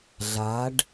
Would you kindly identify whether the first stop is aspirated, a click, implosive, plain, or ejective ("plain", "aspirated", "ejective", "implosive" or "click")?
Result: plain